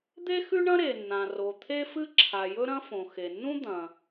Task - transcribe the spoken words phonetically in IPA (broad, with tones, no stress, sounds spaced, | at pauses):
d̪ e˥ x ʉ˥ ɳ ɐ̃˥ ɾ e˩ nː ã˩ r o˩ t̪ʰ e˥ f ɨ˥ ǁʰ a˩ j ɵ˥ ɾ ɐ̃˥ f õ˩ x e˩ nː ũ˥ d̪ ɐ̃˩